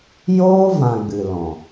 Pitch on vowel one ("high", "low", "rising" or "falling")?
high